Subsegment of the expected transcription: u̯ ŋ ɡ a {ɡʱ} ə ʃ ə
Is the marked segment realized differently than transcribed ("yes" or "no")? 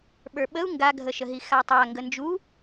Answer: no